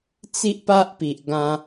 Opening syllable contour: high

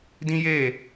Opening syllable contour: high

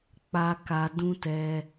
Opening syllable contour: high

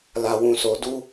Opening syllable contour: low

